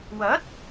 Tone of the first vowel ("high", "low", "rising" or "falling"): rising